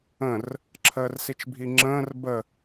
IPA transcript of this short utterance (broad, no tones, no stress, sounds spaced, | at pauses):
ə̃ r | ǁʰ əː r s i t͡ʃ bʱ i ŋ͡ǁ ə̃ː r b ə